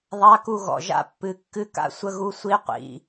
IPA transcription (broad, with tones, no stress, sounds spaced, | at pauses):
ðˤ a˧˥˧ k u˥˩ ɣ ɔ̰˩˧˩ ʒ a̰˥ pː ɨ˩˧˩ kː ɨ˧˥˧ k a̰˥˩ sʷ ə˧˥˧ ɣ u˧˥˧ sʷ i˧˥˧ qʷ ḭ˩˧˩